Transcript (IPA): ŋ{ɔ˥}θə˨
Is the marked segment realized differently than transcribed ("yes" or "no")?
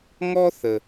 no